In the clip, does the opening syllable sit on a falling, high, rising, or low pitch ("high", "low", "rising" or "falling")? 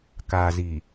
low